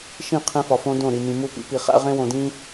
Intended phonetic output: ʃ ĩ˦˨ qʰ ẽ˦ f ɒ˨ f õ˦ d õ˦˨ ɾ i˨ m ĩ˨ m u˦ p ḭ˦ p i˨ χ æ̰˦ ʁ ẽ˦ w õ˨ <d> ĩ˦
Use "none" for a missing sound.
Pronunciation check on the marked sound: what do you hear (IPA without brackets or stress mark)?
d